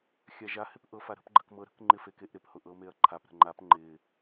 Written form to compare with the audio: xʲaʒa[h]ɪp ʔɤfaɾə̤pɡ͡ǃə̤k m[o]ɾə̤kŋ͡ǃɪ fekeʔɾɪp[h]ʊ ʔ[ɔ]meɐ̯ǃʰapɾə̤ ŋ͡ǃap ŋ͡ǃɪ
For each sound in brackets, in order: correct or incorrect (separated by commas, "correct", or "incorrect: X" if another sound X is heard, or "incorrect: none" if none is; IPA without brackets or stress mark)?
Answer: correct, incorrect: ɤ, correct, incorrect: ɤ